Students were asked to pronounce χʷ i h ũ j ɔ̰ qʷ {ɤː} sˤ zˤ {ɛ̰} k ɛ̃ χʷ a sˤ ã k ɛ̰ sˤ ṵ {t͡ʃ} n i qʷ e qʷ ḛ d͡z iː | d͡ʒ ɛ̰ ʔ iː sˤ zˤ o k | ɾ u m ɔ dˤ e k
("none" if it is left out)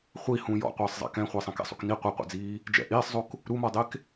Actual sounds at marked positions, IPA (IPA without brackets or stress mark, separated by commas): ɤː, ɛ̰, k